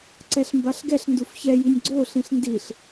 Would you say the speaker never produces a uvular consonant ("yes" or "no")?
yes